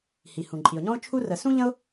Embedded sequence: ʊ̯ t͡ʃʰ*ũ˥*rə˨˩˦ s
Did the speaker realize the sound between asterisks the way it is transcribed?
no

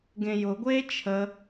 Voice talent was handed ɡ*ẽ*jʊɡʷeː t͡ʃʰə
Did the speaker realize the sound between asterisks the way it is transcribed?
yes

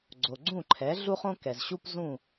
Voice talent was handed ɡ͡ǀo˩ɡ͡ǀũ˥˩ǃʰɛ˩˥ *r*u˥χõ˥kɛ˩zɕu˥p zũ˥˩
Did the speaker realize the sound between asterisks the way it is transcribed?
no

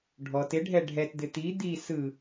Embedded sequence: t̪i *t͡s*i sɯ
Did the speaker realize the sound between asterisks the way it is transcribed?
no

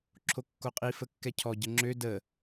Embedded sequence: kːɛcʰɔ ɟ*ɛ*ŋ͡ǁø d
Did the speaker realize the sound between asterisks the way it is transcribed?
no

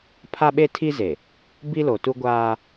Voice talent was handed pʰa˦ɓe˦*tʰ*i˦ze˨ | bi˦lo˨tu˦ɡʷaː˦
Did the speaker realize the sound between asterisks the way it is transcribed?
yes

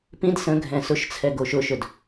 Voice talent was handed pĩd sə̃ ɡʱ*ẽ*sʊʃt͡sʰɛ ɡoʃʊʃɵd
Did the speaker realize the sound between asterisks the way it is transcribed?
no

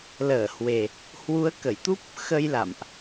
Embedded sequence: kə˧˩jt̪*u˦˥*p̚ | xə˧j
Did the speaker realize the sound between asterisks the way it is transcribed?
yes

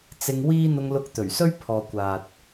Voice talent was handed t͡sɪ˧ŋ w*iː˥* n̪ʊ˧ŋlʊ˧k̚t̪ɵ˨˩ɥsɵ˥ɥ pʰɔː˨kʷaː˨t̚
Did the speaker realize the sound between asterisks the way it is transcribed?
yes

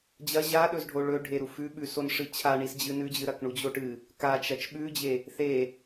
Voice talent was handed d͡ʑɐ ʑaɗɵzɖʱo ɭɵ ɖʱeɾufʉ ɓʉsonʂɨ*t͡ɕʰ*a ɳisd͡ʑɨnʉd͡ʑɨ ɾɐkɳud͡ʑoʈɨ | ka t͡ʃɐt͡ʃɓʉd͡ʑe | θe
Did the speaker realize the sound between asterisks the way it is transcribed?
yes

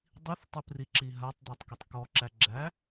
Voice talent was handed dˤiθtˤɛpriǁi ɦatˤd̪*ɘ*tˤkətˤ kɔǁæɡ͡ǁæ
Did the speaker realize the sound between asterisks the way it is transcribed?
no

